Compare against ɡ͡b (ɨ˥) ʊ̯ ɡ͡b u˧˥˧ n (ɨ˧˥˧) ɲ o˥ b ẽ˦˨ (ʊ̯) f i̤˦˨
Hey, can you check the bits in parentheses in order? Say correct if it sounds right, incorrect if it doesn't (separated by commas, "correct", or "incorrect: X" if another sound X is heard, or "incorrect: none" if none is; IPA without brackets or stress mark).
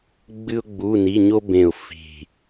correct, incorrect: i˧˥˧, correct